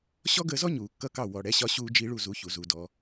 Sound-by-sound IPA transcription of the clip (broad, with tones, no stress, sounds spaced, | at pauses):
ɕ ɔ˥ ɡ əː˧ z ɔ˥ ɲ uː˩ kː ʌ˥ k ɑ˥˩ w ɔ˩ ɽ ɛ˩˥ ɕ ɒ˧ ɕ uː˧ d͡ʒ i˧ ɭ u˥˩ z u˩˥ ç u˩ z u˩ d ɔ˩